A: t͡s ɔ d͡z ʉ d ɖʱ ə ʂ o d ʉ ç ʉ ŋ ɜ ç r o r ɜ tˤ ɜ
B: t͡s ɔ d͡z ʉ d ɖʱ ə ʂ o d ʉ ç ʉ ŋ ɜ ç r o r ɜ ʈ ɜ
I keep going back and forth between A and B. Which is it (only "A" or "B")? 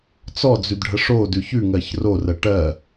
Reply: B